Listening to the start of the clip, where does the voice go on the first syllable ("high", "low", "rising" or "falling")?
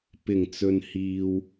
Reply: low